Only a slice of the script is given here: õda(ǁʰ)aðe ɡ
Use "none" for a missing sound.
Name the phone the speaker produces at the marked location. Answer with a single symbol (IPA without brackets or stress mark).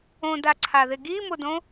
ǀʰ